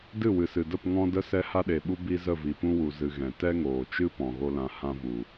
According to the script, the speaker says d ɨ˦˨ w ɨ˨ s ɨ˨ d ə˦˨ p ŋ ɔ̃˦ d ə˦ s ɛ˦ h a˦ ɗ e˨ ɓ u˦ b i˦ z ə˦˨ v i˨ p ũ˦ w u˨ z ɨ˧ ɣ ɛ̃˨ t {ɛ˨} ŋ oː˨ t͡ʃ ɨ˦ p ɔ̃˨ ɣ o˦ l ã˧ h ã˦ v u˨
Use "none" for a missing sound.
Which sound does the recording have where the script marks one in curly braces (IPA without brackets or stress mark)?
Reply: ɛ˦